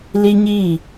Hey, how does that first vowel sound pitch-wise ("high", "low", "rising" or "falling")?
high